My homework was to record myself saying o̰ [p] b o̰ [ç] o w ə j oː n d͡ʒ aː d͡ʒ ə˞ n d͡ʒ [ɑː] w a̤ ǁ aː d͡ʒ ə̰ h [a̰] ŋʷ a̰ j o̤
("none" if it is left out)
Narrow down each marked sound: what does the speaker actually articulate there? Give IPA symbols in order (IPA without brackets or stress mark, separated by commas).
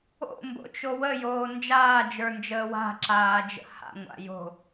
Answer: m, t͡ʃ, əː, a̰